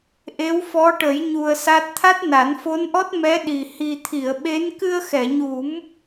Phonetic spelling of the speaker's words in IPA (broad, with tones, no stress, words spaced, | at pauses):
ʔe˧˥wfɔ˧˥ʈə˨˩˦jɲu˨˩ə̯ sa˦˥t̚ t̪ʰa˦˥t̚na˨˩˦nfo˧˥nʔɔ˦˥t̚ mɛ˧˥ɗi˨˩ hi˨˩t̪ʰi˨˩˨ə̯ ɓe˧˥n kɨ˧ə̯xɛ˨˩˨ɲu˨˩˦m